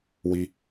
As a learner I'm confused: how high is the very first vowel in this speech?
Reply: high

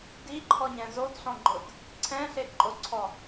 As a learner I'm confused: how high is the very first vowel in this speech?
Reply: high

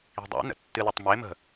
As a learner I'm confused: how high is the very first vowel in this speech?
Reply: high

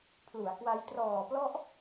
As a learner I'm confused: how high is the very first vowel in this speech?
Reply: high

